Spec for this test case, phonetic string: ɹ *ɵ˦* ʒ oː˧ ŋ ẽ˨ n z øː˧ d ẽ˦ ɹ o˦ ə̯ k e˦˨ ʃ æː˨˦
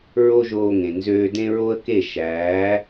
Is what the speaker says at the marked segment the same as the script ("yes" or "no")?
no